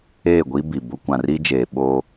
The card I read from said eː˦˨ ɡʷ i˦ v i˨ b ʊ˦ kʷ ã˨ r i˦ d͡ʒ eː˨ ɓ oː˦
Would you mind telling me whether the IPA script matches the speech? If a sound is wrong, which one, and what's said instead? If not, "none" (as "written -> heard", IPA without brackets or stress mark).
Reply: v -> b